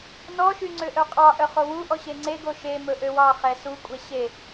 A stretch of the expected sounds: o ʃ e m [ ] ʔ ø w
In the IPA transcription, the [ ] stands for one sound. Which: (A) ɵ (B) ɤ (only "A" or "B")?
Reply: A